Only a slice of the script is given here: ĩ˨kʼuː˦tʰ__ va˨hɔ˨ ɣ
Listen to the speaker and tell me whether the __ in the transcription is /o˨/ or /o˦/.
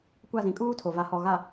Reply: o˨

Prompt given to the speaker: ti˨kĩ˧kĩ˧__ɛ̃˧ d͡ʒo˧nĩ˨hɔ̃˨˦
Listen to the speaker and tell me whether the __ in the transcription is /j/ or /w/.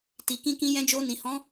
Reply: j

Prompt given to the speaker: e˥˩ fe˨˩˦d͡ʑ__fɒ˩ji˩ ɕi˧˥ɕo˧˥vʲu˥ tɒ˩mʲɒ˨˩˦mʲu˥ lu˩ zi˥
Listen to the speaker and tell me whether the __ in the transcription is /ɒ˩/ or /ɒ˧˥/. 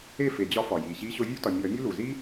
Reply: ɒ˧˥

